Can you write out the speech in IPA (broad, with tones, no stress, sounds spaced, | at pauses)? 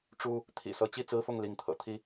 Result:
ʈ͡ʂ u˦ | t̪ʰ ḭ˨˩ s ɤ˨˦ t͡ɕ i˥˨ t͡s ɹ̩˦ f ʊ˥˨ ŋ l i˨˦ ŋ t̪ʰ ɤ̰˨˩ t̪ʰ i˦